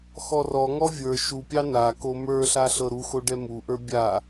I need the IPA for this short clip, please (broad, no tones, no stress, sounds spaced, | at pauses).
x ɔ r ɔ ŋ ɔ vʲ ə˞ ʃ u pʲ ɑ n a k o m ə˞ ɬ a ɬ ɤ ɾ u x o ɖ ɛ m u ʔ ə˞ bʲ a